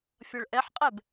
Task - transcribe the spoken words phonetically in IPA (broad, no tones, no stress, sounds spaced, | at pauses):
fʲ ʌ ɭ ʔ ɛ ħ qʼ ɛ b